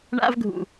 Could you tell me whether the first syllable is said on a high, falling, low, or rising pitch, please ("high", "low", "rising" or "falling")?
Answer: high